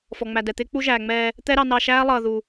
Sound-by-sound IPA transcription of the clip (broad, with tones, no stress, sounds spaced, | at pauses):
f ɔ˨ ŋ͡m æ˨ d ɛ˨ t̪ ɪː˦ k͡p u˦ ʒ æː˨ ŋ͡m ɛː˧ | t̪ ɛ˦ ɾ ɑ˧ n ɑ˧ ʃ æː˦ lˠ ʌː˧ ð u˨